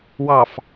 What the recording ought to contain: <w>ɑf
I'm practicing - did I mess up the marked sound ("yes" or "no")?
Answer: no